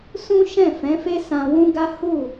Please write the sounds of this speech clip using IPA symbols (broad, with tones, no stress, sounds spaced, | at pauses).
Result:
s ũ˦ ʃ ɛ̃˦˨ f ɛ̃˨˦ f e˦ s ã˧ w ũ˦ ɡ a˦ h u˦˨